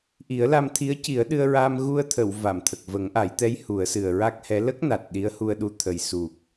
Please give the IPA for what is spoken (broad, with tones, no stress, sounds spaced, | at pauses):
ʔ i˨˩˦ ə̯ l a˧ m t̪ʰ i˧˥ ə̯ c i˨˩˦ ə̯ ɗ ɨ˧ ə̯ ɹ aː˧ m ɣ u˧ ə̯ t̪ʰ ə˨˩˨ w v a˨˩˨ m t̪ʰ ə˨˩ k̚ v ə˨˩˦ ŋ ʔ a˨˩˦ j t̪ ɛ˧˥ j h u˨˩˦ ə̯ s ɨ˨˩ ə̯ ɹ a˦˥ k̚ h ɛ˧˥ l ə˦˥ k̚ n a˨˩ t̚ ɗ i˧˥ ə̯ h u˧ ə̯ ɗ u˧ t̪ʰ ə˨˩ j s u˨˩ k̚